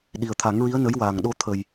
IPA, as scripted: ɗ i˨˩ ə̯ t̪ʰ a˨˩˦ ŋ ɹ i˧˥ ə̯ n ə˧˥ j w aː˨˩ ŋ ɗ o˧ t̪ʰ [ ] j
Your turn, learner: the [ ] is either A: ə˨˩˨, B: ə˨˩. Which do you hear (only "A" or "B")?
B